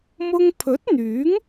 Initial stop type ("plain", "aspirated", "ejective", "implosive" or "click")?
aspirated